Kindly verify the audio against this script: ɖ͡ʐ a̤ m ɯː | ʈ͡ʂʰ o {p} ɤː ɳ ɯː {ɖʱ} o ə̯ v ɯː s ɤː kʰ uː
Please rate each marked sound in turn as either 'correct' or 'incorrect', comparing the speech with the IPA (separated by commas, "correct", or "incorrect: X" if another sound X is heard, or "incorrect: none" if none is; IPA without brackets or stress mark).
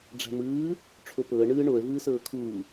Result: correct, incorrect: ɳ